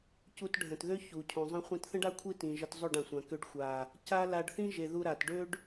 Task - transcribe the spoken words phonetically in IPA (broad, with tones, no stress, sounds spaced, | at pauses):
c u˧ t ɖʱ ə̃˨ t ð ø˦ ç u˨ cʰ ũ˨ zˤ ə̃˦ χʷ ĩ˧ t θ ə̃˦ ɖ a˦ kʷʰ i˦ t ĩ˨ ʒ ə˧ t zˤ ø˦˨ ɖ ã˨ sʷ ã˨ k ø˧ ɖ xʷ a˨ | c a˦ l a˧ ɖ θ ĩ˦ ʒ e˨ ð u˧ ɾ a˨ t ɖ ø˦ ɖ